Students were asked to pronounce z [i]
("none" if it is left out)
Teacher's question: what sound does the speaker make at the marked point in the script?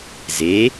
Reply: e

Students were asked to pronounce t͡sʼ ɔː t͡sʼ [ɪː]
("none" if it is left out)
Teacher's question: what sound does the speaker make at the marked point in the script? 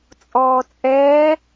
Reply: ɛː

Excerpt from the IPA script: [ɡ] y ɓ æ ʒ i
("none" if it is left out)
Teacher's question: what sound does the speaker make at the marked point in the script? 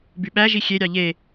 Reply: b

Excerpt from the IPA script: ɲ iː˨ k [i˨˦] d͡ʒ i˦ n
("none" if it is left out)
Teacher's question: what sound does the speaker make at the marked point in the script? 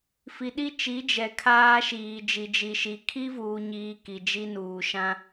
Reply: i˨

